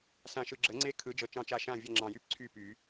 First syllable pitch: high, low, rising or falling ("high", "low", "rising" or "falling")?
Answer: low